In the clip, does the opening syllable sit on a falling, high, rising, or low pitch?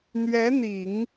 rising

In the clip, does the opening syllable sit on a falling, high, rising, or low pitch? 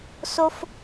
high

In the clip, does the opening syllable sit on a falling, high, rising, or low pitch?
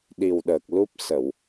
low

